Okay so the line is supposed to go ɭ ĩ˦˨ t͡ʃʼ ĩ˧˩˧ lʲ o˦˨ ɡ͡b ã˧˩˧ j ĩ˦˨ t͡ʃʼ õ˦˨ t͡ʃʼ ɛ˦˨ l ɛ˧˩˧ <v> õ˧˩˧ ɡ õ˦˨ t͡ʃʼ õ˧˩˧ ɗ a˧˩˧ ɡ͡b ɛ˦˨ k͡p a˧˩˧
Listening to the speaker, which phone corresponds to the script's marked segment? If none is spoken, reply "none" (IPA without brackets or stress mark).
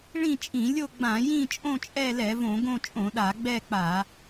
v